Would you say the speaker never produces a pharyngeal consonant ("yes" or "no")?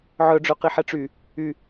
no